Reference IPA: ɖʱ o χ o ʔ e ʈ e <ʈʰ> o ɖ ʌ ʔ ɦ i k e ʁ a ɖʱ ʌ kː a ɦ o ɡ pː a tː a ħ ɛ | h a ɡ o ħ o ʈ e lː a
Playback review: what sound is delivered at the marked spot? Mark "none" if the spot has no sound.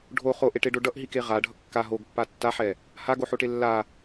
ɖ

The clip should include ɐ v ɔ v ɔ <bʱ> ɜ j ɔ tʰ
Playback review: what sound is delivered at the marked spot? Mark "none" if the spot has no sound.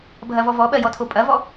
ɓ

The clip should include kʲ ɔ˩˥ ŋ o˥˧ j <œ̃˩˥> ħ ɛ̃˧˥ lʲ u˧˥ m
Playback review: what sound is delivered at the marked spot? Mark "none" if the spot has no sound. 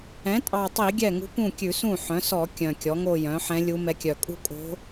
œ̃˩˥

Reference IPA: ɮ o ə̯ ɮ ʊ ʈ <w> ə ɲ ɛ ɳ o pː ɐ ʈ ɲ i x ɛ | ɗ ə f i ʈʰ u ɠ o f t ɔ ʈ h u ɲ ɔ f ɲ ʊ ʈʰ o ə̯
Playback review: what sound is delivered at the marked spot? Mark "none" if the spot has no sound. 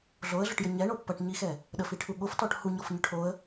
j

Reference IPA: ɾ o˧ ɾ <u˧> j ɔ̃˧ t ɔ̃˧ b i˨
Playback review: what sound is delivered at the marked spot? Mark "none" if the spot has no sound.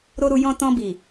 u˧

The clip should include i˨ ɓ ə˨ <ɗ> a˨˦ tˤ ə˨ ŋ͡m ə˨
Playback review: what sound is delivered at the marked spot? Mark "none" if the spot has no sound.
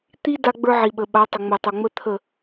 ɓ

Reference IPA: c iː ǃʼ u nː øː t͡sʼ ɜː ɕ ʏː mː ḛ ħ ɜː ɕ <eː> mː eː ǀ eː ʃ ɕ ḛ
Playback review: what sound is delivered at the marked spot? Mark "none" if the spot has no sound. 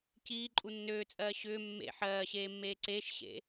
eː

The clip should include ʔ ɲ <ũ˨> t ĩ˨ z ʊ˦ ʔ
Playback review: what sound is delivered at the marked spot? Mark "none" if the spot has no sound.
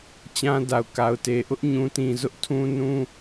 ũ˨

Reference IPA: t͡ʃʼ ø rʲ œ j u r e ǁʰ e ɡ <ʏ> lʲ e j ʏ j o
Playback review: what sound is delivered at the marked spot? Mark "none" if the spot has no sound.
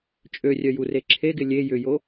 ɪ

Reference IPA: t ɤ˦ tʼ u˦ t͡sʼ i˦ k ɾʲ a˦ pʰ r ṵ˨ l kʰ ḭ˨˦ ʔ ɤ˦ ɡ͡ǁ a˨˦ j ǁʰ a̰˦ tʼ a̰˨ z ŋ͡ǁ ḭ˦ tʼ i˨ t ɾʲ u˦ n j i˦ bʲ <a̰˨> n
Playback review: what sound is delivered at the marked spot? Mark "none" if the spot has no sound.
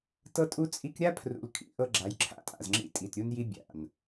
a̰˨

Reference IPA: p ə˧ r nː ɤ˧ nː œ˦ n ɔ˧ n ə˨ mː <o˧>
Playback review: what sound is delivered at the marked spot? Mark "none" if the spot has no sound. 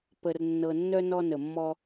ɔ˧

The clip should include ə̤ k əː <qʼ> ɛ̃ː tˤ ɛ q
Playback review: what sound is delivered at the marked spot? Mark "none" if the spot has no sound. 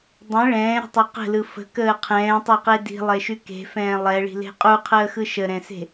qʰ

